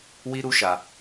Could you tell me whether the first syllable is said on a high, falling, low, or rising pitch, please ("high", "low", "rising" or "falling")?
high